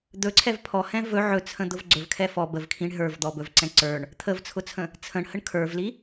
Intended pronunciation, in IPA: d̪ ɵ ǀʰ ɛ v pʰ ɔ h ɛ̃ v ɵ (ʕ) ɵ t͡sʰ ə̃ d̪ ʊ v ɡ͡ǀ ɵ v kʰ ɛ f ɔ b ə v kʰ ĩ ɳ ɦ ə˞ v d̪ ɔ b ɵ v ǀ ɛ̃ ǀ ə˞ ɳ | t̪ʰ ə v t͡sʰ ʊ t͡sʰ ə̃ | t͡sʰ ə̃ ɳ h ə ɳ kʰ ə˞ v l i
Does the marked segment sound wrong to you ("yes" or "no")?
no